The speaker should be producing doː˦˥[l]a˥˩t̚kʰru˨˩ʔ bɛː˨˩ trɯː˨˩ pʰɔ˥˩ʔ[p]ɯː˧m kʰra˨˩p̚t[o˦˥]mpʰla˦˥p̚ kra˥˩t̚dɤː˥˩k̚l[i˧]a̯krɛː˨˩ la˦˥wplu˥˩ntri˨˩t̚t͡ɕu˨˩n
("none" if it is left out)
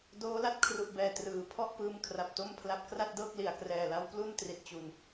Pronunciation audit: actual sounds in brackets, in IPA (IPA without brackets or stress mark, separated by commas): l, p, o˥˩, i˨˩